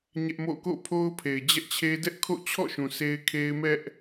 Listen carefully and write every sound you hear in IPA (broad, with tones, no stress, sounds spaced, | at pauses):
ɲ ɛ˦ ʔ m o̰˦˨ k o̰˦˨ pʰ o˦ ʊ̯ pʰ e˨ ɪ̯ d͡ʑ ɛ˦ ʔ t͡ɕʰ e˦ d ɛ˦ ʔ kʰ o̰˦˨ t͡ɕʰ ɔ̰˦˨ ʃ ũ˨ s e˦ ɪ̯ kʰ e˦ ɪ̯ m ɛ˦ ʔ